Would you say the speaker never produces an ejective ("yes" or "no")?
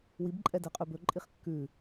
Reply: no